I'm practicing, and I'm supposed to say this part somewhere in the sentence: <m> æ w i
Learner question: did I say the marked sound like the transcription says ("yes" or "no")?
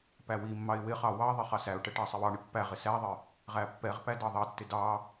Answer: no